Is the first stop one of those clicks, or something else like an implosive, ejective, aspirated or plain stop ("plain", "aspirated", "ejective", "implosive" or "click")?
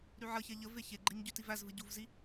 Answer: click